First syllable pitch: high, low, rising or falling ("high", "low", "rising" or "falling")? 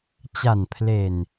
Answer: low